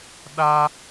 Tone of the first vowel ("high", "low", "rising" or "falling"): high